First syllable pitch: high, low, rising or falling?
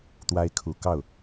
high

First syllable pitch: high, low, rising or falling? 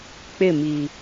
falling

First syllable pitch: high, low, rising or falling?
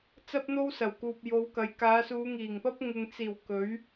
high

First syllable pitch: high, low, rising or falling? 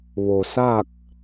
low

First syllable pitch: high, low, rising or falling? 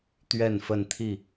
falling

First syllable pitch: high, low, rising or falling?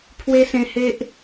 high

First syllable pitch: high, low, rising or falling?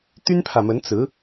high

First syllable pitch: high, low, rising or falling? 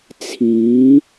rising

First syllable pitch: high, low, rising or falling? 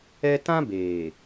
high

